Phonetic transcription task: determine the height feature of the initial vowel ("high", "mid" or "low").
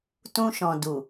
high